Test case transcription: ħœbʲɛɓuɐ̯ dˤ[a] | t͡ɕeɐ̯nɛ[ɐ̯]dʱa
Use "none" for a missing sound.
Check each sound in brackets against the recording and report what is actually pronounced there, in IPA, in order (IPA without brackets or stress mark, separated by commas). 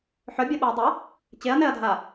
ə, ɐ̯